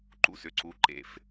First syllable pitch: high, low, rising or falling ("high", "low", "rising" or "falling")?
falling